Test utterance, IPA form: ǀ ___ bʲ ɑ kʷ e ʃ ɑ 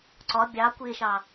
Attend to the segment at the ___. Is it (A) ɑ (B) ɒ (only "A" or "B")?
B